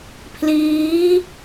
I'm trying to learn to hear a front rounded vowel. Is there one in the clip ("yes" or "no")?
no